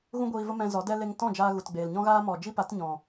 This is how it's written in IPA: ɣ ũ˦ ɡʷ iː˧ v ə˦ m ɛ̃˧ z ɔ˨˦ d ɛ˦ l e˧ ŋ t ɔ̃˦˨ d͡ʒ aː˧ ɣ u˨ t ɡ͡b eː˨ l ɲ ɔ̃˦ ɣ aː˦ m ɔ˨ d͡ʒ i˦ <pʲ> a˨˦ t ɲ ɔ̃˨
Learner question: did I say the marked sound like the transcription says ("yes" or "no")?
no